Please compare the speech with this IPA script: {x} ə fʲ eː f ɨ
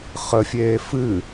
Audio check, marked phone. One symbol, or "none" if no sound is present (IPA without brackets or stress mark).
χ